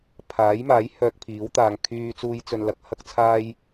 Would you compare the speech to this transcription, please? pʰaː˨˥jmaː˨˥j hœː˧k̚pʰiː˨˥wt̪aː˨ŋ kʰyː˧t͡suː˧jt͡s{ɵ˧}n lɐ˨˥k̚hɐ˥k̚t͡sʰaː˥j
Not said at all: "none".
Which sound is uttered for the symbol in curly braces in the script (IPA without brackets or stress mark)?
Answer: ɵ˨